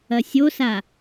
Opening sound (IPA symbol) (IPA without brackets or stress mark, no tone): ɐ